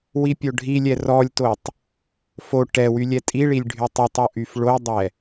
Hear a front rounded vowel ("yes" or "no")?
yes